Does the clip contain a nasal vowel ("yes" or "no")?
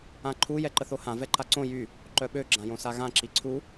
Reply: yes